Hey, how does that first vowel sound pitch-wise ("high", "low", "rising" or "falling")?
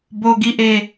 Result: high